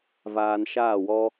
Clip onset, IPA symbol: v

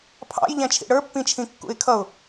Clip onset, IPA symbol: pʰ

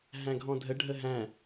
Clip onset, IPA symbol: ɦ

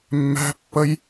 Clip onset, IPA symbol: mː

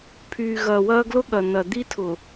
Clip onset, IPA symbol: pʰ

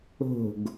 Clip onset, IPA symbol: o̤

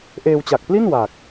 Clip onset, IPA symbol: ʔ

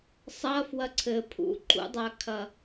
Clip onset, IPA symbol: sˤ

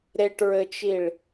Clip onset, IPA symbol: ɾ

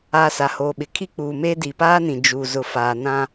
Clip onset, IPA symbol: a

